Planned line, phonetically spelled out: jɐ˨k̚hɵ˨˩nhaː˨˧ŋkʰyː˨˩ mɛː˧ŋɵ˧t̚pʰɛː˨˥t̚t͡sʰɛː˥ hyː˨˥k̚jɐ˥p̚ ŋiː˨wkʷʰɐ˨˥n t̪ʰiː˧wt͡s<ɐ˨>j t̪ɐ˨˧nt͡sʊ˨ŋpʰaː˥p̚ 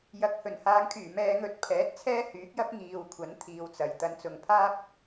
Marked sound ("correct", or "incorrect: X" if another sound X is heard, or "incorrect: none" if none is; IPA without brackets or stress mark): correct